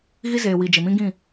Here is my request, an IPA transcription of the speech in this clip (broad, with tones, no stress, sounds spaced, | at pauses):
ɣ i˦ z eː˨ w i˨ d͡ʒ ɪ˨ m ĩ˦ ɡ ĩ˦˨